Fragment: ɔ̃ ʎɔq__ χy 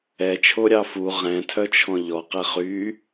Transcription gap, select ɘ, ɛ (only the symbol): ɛ